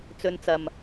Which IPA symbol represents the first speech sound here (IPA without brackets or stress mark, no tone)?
t͡s